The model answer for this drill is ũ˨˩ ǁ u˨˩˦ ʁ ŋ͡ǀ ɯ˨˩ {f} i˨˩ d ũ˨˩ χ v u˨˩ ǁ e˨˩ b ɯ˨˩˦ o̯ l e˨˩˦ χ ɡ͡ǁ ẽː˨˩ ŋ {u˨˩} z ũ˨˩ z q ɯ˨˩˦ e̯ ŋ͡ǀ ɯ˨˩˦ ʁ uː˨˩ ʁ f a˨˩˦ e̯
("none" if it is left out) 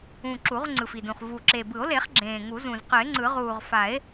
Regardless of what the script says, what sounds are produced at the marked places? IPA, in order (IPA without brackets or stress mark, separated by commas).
f, u˨˩˦